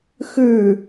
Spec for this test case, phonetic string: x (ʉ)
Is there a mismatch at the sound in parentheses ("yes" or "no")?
no